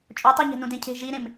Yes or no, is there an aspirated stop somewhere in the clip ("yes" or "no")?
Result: yes